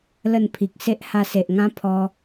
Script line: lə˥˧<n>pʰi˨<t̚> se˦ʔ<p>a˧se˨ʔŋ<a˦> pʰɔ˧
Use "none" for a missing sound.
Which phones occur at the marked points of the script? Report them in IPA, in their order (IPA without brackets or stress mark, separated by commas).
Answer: n, k̚, h, ã˦